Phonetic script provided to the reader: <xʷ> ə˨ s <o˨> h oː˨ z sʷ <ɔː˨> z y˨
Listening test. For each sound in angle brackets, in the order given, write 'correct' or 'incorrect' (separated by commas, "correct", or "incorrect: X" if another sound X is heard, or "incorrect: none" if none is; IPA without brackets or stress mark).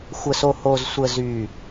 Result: correct, correct, incorrect: əː˨